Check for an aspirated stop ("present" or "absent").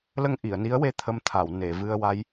present